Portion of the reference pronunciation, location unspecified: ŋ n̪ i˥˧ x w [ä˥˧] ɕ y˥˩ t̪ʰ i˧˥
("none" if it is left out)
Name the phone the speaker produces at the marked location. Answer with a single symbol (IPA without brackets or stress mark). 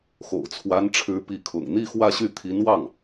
ä˥˧